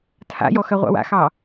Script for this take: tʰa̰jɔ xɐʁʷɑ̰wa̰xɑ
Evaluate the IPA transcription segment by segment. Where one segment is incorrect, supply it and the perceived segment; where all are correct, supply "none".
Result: none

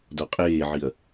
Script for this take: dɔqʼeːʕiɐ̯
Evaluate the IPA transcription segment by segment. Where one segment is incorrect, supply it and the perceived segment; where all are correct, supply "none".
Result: none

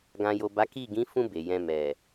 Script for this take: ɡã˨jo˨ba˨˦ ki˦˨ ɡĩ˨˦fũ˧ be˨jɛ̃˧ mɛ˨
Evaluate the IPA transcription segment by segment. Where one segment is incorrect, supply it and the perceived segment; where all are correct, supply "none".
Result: none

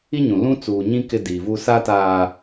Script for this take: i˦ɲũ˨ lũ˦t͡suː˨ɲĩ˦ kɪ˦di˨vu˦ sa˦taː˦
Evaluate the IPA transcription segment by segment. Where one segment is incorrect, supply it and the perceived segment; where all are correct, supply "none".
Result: none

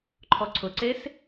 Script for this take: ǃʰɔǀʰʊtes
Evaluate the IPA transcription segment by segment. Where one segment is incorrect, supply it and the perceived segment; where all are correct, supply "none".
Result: t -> ǀ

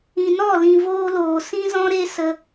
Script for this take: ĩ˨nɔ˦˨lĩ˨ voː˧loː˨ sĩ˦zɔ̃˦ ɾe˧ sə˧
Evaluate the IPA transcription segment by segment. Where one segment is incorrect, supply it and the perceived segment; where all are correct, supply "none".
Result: none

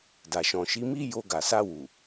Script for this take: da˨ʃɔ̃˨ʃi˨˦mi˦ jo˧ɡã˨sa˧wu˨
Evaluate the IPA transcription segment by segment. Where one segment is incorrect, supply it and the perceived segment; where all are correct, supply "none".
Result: ã˨ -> a˨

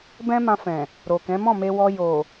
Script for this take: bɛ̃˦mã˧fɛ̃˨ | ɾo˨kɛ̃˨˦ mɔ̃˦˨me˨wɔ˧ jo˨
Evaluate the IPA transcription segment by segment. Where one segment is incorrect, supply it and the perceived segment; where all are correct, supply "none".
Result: e˨ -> e˧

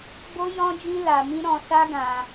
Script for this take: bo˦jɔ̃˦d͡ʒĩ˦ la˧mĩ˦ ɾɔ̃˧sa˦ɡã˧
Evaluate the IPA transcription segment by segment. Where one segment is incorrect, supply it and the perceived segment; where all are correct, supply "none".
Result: none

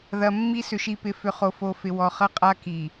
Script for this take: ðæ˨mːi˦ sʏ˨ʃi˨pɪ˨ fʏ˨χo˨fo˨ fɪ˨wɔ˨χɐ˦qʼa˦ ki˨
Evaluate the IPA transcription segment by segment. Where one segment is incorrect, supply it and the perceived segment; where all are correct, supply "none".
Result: æ˨ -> ɐ˨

